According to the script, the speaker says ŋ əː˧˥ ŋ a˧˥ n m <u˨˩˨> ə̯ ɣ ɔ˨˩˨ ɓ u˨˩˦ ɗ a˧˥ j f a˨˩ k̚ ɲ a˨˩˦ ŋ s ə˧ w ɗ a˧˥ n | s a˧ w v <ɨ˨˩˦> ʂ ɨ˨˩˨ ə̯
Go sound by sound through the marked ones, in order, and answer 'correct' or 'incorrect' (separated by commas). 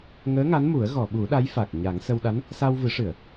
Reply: incorrect, correct